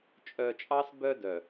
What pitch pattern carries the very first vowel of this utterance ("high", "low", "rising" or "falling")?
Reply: low